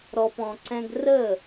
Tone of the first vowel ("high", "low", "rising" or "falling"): low